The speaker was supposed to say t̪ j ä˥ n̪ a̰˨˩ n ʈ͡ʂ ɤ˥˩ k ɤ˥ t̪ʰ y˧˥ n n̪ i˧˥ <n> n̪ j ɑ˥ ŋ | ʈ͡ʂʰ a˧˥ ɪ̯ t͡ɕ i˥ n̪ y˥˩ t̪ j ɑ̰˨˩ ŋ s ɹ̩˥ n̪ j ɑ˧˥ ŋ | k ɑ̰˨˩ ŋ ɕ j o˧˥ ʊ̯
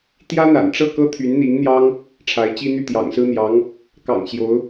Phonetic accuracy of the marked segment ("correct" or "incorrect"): incorrect